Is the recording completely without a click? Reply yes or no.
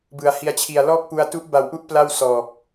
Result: yes